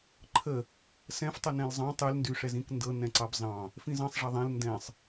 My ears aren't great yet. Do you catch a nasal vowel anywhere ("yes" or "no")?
yes